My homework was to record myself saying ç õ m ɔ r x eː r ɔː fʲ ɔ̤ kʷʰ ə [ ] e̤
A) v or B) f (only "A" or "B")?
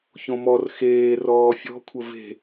A